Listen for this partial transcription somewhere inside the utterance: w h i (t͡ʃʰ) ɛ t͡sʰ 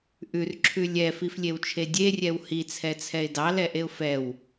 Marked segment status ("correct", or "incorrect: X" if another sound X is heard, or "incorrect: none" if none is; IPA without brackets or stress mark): incorrect: t͡sʰ